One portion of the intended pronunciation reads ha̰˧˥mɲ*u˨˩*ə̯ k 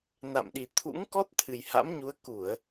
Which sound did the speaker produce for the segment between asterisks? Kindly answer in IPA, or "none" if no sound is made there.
u˨˦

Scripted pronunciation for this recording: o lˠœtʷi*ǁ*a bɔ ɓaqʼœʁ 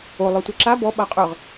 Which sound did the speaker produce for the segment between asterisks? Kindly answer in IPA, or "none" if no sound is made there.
ǁ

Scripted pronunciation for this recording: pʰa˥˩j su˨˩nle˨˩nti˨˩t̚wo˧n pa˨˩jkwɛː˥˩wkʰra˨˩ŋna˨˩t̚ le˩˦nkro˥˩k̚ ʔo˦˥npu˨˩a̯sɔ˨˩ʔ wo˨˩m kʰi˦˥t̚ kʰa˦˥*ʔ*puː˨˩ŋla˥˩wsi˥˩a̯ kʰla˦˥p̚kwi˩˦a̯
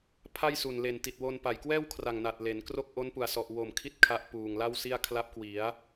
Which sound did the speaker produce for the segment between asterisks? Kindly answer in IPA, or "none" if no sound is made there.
ʔ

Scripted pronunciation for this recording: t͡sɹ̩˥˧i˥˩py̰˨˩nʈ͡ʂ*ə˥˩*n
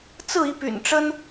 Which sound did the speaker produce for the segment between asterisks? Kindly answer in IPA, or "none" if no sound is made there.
ə˥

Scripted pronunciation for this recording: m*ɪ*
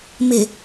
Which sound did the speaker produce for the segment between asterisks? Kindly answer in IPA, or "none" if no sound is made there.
ɪ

